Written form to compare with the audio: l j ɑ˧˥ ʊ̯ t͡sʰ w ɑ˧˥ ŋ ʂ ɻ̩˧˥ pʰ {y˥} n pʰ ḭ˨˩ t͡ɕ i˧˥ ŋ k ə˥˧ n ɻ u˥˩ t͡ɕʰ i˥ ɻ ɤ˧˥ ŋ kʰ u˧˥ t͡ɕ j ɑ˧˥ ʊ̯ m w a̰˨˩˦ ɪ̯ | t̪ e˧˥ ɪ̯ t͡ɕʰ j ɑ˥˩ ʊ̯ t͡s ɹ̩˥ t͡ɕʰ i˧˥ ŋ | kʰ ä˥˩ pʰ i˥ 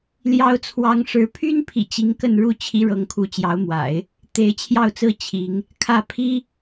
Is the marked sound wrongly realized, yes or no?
no